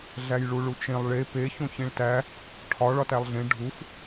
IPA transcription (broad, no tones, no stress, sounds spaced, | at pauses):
ɮ æ j ɭ u ɭ u t͡ʃ ẽ lˠ ɭ e p e ç õ ç ĩ ɭ t æ | ʈʰ ɒ ɭ ɒ t æ lˠ ɮ ẽ ɖʱ u f